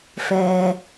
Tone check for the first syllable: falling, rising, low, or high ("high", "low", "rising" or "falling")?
low